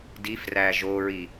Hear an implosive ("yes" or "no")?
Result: no